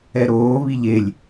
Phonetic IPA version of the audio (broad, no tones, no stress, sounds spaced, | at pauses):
ɛ ɾ oː β i ʎ e lʲ